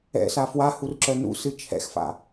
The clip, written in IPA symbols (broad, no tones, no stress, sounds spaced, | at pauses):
ɛ̰ s a f w a h u r ǁ œ n ṵ s ɨ t͡ʃʰ ɛ̰ x f a̰